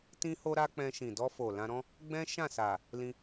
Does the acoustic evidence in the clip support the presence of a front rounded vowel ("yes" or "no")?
no